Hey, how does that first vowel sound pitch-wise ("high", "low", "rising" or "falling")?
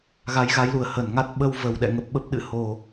rising